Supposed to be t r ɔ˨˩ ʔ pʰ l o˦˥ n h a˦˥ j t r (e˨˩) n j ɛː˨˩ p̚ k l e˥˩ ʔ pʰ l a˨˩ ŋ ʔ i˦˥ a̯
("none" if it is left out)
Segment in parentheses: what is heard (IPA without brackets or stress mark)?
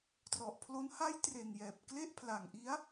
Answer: e˨˩